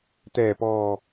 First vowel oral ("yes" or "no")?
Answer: yes